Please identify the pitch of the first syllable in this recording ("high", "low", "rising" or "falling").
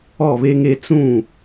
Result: falling